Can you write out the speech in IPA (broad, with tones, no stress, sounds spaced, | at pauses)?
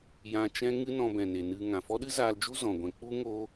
j ã˧ t͡ʃ ɛ̃˦ ŋ ɨ˦ n ɔ̃˧ b ɛ̃˨ n e˨ n ɨ˧ ŋ ã˨ f ɔ˦ ɗ ɨ˦ z aː˧ l d͡ʒ u˦ z ɔ̃˨ ɡʷ ɛ̃˧ k͡p u˦ ŋ o˦